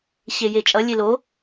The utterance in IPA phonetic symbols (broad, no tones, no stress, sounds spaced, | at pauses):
ɕ e j e t͡ʃʼ ʌ lʲ e l o